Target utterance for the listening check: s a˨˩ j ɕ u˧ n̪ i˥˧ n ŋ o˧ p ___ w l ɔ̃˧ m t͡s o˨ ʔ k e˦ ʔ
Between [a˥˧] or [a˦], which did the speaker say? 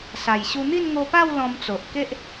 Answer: a˥˧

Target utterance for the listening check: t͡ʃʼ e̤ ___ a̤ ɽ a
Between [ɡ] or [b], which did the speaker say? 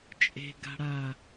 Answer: ɡ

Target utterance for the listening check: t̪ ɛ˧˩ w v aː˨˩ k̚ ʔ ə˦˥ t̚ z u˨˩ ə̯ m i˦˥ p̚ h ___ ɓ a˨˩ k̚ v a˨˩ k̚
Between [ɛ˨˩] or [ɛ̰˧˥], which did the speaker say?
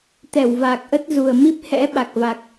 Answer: ɛ̰˧˥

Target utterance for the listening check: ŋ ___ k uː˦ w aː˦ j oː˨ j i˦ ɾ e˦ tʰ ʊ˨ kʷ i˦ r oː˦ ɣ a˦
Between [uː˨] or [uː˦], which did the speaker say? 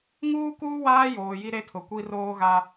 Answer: uː˦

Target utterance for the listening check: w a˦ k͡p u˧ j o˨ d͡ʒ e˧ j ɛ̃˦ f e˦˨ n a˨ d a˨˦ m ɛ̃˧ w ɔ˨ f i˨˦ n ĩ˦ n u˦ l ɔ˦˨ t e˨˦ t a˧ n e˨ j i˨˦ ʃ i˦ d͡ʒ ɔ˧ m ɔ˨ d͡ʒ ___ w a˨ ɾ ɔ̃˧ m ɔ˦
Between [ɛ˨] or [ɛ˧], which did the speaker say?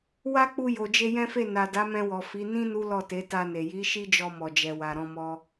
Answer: ɛ˨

